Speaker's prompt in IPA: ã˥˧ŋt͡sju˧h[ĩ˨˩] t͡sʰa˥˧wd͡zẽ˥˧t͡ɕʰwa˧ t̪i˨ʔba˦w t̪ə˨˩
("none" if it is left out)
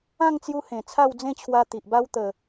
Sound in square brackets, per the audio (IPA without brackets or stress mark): ẽ˨˩